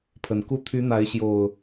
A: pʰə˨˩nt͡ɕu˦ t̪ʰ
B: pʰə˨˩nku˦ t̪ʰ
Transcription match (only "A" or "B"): B